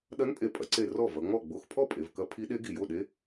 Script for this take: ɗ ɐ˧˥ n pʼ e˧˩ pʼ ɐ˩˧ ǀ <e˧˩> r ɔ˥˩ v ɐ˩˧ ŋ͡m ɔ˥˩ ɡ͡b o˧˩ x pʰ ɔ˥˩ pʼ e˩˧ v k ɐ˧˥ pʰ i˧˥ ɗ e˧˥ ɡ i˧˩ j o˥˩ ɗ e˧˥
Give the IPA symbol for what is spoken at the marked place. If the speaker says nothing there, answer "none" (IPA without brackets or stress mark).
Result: e˧˩